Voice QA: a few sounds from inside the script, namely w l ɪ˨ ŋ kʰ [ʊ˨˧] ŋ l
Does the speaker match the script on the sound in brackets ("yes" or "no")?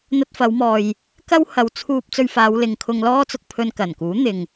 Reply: no